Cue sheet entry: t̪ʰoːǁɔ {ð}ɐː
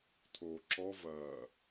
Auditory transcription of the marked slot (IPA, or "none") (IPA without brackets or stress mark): v